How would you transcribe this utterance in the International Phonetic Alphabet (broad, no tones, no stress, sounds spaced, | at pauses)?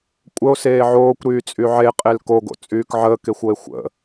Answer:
kʷʼ ə o̯ s eː ʕ oː kʷ ɾ yː t͡sʼ y ʕ e qʼ e l k o ɡ o̰ t͡sʼ yː k ʕ əː k e xʷ o e̯ xʷ ə̰